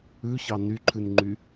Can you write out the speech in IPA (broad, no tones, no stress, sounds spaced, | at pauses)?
ʉ ç ɑ n y ǃʰ ʉ n ŋ͡ǃ y